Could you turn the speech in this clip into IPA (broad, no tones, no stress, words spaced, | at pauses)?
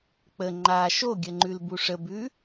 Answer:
k͡pə ŋ͡ǃa ʃoɡʲə ŋ͡ǃʉlbuʂəbʉ